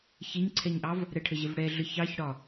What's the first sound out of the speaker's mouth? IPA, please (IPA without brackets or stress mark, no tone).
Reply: ç